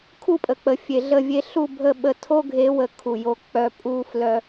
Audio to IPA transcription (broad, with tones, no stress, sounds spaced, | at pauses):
kʰ u˦˨ pʼ ə˨ k͡p ə˨ fʲ e˨ ɮ ə˦˨ vʲ e˦ ɬ u˦˨ bʱ ə˦˨ ɓ ə˦ tʰ o˦ ɡʱ e˨˦ w ə˨ kʰ u˨ j o˦ k͡p œ˦ pʼ u˦ f l œ˦